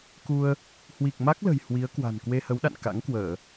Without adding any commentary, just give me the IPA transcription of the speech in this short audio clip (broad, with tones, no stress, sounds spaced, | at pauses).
k u˧ ə̯ | h w i˨˩ k̚ m a˦˥ k̚ l ə̤˨˩ j h w i˨˦ ə̯ k w a̤˨˩ n k w e˧ h ə˨˦ w ɗ a̰˧˨ n k a̰˧˥ ŋ k w əː˧˩˨